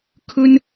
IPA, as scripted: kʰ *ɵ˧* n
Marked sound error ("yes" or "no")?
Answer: yes